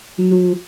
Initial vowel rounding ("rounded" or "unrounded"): rounded